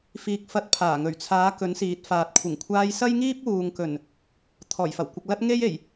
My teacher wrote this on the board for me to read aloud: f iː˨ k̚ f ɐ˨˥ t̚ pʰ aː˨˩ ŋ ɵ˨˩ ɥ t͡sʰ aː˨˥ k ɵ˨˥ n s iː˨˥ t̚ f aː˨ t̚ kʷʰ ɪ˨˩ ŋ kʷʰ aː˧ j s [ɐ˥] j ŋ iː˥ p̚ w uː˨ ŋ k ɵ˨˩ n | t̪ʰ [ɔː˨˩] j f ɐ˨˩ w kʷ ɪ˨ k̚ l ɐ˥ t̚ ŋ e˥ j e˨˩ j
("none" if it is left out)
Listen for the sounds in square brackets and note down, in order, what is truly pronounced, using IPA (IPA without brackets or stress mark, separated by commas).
ɐ˥, ɔː˨˩